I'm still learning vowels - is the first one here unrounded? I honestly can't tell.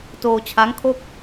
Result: no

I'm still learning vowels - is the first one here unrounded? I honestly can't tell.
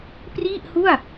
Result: yes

